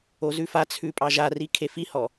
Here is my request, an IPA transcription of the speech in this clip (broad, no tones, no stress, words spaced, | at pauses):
ozʉfat͡sʰʉ pʼɑʒari kʰefihɔ